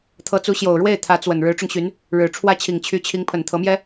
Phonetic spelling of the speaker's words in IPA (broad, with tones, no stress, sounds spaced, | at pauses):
t̪ʰ ɤ˧˥ t͡s u˧˥ ɕ j o˨˩ ʊ̯ ɻ w e˥˩ ɪ̯ t̪ʰ ä˧˥ t͡s w ə˨˩ n ɻ ɻ̩˧˥ ʈ͡ʂ ʊ˧ ŋ ɕ y˧˥ n | ɻ ɻ̩˨˩ ʈ͡ʂʰ w ä˥ t͡ɕʰ i˨˩ ŋ t͡ɕʰ y˧˥ t͡ɕʰ i˧˥ ŋ pʰ ə˨˩ n t̪ʰ ɤ˧˥ m j ɛ˥